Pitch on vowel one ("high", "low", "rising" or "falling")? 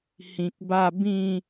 low